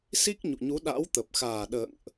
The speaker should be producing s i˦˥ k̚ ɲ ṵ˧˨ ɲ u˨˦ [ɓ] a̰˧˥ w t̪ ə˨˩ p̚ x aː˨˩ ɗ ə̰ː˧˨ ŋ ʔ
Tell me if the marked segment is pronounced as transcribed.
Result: no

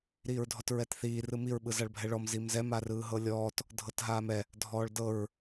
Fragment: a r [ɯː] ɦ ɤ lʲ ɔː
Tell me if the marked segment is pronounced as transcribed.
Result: yes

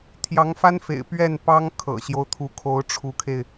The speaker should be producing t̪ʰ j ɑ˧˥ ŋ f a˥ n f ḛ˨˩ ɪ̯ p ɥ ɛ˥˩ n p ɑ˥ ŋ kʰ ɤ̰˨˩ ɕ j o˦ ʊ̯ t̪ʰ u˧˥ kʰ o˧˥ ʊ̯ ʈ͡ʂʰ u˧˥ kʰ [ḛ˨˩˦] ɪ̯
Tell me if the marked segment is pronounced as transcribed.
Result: no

